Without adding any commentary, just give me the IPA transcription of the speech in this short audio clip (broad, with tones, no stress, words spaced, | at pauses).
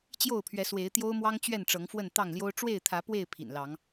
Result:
t͡ɕjo˥˨ʊ̯pʰɥɛ˨˦swe˨˦ɪ̯ t̪jo˦ʊ̯mwɑ˦ŋ t͡ɕɥɛ˥˨n ʈ͡ʂɤ˨˦ŋfwə˥˨n t̪ɑ˥˨ŋljo˦ʊ̯ ʈ͡ʂwe˥˨ɪ̯t̪ʰä˨˦ pwe˥˨ɪ̯ pʰḭ˨˩nlɑ˨˦ŋ